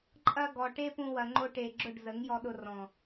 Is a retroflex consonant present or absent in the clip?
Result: present